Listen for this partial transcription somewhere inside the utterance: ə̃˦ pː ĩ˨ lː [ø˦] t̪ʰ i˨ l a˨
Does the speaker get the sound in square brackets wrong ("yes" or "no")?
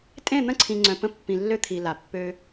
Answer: no